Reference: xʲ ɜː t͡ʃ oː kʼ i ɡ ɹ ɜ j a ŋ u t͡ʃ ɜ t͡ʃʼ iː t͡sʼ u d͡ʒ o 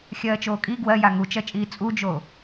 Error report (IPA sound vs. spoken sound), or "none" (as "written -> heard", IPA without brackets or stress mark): ɹ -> w